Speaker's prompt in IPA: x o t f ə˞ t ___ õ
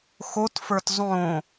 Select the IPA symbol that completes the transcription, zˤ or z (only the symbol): zˤ